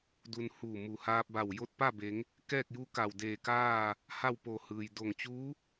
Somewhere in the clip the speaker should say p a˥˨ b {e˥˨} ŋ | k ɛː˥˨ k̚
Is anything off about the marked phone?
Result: yes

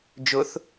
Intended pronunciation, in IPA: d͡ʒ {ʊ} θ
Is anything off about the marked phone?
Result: no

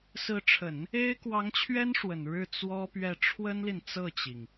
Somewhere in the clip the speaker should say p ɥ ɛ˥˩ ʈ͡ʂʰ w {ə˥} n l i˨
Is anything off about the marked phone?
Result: no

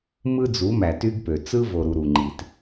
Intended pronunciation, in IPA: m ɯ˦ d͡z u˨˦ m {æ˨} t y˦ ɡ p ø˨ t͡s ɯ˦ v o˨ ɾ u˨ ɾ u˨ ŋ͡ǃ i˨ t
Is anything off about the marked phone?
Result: no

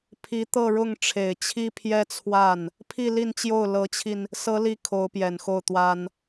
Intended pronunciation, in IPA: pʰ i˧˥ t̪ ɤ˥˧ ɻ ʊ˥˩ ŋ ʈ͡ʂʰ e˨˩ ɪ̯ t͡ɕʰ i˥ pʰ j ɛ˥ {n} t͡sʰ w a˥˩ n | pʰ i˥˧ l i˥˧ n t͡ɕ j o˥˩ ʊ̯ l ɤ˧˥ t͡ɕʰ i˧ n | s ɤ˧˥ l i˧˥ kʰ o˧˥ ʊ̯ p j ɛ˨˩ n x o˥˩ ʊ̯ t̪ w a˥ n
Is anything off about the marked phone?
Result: yes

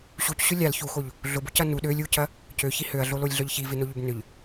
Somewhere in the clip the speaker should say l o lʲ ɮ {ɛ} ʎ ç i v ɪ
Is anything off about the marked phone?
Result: yes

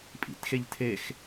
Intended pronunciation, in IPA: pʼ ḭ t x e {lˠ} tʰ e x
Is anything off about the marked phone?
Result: yes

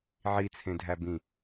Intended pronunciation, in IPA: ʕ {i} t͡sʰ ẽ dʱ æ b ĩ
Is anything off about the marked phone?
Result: no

